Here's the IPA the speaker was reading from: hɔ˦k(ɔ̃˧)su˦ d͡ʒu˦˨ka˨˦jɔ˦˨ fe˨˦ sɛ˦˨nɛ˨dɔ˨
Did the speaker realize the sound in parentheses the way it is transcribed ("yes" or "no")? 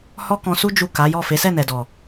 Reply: yes